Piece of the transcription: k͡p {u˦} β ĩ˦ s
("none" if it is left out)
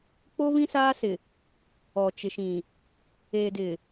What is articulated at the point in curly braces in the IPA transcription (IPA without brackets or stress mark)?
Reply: o˦